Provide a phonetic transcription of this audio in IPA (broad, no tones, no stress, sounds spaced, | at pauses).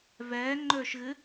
v ɛː ŋ͡ǃ ɵː ʃ ɣ ɨ